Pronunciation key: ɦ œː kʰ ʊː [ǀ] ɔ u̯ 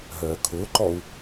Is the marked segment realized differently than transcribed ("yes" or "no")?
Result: yes